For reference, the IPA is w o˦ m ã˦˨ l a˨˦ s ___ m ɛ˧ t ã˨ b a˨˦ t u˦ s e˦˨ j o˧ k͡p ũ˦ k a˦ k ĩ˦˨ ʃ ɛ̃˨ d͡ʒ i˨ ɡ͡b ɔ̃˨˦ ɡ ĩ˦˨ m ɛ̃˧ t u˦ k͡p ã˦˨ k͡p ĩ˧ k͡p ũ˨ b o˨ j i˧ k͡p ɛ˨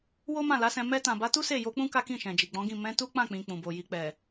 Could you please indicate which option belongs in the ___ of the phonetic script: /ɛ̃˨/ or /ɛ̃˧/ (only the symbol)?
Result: ɛ̃˧